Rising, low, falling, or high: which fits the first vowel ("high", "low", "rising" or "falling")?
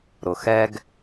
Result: low